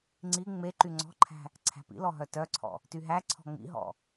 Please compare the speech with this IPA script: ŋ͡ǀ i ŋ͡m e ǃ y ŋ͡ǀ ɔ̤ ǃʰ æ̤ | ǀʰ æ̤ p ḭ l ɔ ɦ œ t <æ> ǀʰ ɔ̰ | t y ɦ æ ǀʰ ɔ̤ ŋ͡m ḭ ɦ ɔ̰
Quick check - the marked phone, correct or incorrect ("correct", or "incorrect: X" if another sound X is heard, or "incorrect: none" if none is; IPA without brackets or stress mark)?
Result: incorrect: œ